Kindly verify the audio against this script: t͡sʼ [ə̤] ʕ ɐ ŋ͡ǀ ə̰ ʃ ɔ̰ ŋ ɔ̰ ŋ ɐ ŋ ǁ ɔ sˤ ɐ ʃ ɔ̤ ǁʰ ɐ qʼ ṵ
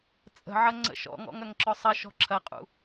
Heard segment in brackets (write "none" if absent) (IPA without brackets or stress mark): ə̤